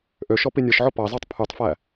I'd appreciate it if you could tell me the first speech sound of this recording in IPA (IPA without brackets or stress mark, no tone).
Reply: ʔ